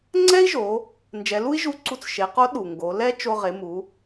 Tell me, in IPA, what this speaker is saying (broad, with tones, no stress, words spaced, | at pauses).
ŋ͡ǀɛ˥i̯ʒo˩˧ | nd͡ʒɛ˩˧lu˥i̯ʒu˧˥ǀu˧t͡s ʃe˩˧qo˧˥ ɗu˩ŋɡo˩˧lɛ˥ t͡ʃo˧ʁe˩˧mu˩˧